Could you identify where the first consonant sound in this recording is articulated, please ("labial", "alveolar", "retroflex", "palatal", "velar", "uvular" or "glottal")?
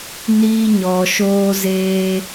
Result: alveolar